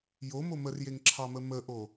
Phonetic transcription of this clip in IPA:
j o m o m ə r j e ŋ ǁʰ ɑ m ə m ə ʔ o

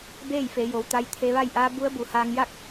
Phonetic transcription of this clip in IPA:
b eː˥˨ j f e˩˧ j o˩˧ w t̪ a˧ j t̪ʰ e˧ ʋ a˥˨ j ʔ aː˧˥ b u˧˥ ə̯ b u˩˧ h aː˧ ŋ j a˥˨ k̚

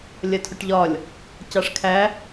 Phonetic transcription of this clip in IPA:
lʲ ɜ tʰ ʊ ʈ ʎ ɒ lʲ | c ɑ ʂ kʰ æ

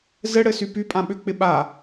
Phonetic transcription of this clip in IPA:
z ɘ ɽ ɘ s y p y pʼ ã ɓ ʏ k͡p ɪ ɓ a

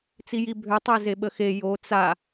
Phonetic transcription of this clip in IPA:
t͡s i j i bʱ ø tˤ ɛ z e ɓ ə x e j o t͡s a

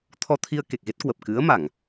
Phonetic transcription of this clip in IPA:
t̪ʰ ɔ˧ t̪ʰ i˧ ə̯ k e˨˩ k̚ ɣ e˦˥ t̚ k w ə˨˩ p̚ k ɨ˨˦ ə̯ m a˧˩˨ ŋ

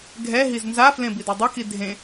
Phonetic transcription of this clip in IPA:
ɡʱ ɛ ɦ i z n z a f l ẽ b i d a dˤ a k i dʱ ẽ

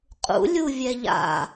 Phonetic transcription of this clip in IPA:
qʼ ṵ lʲ u vʲ ɛ ʎ a̰

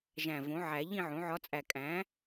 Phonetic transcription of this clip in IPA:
ʒ æ̃˨˩ v õ˩˥ ʕ æ˨˩˦ ʎ ĩ˥˧ ʕ õ˩˥ ʕ ɒ˧˥ t͡sʼ æ˨˩ kʼ æ̃˩˥

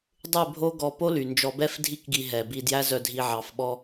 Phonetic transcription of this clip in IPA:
dˤ ʉ˦˨ bʱ o˦ ɡ ɔ˧ p o˦ l y˨ n d͡ʒ ɔ˧ b ɛ˦ f dʱ i˦ k ɡ i˧ ɦ ɛ˨ b i˧ d j æ˦ z œ˧ dʱ i˧ ʕ ɑ˨˦ f ɓ ɔ˦

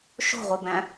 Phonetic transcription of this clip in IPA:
ʃ o̤ ʁʷ i b æ̃

